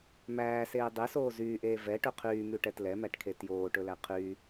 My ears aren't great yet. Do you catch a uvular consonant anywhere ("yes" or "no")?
yes